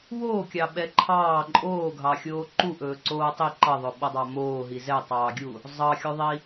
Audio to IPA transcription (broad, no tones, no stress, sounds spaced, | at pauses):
w oː kʲ ɑ ɓ ɛ ǃʰ ɑː ǃʼ oː ɡʱ ɑ xʲ oː ǃ u ʔ ɵː ǀ oː tˤ i ǃ ʌ ðˤ ɵ ɓ ʌ dˤ ɑ m oː ɦ i z ɛ tˤ ɑː ɡʲ u | zˤ ɑ xʲ o ðˤ i